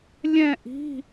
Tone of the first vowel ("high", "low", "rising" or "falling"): falling